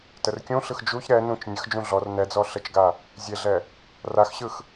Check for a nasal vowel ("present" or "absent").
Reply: present